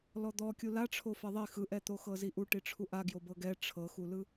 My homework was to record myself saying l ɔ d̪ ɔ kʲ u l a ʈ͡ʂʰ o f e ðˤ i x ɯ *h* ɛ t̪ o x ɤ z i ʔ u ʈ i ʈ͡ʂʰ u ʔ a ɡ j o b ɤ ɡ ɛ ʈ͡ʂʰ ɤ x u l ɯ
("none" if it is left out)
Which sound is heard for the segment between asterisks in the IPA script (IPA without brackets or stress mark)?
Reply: ʔ